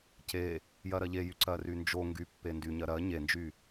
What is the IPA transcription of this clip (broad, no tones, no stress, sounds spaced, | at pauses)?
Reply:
c e | j ɜ ɾ ɜ ʎ e j y ǀ ɜ r y n d͡ʒ o ŋ ɡ y pː e n d y ɲ ɜ ɾ ɜ ɲ e n d͡ʒ y